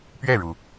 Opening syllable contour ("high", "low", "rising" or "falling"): falling